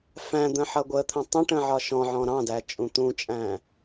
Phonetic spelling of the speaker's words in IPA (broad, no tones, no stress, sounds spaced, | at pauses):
f æ̃ d̪ ə̃ ħ ʌ ɡʷ ə t̪ʰ ə̃ tˤ ə̃ ʈ ə̃ ʕ ɒ ʃ ɔ̃ ʕ ɔ̃ ɾ ɑ̃ d æ t͡ʃʼ ũ t̪ ũ t͡ʃʼ æ̃